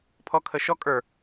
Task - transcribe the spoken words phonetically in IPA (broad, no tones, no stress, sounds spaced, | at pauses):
pʰ ɔ kʰ ə ʃ ɔ kʼ ə˞